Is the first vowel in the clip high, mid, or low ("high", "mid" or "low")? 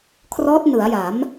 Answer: mid